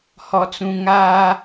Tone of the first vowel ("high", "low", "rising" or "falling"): low